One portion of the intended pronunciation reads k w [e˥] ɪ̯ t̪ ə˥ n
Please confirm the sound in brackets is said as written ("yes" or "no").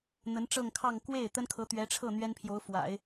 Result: no